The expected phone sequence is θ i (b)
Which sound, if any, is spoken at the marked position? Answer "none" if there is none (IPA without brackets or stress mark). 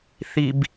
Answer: b